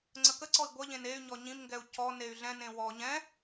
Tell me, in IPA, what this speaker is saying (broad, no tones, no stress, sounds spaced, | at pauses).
ŋ͡ǀ ə k ə ǀ ɔ i̯ ɡʷ ʌ ʎ ẽ n e y̯ ɲ ɔ ɲ ĩ m ŋ ɡ ɛ u̯ c ɔ n e y̯ ɮ ɛ̃ n ẽ w ɔ ɲ ɛ̃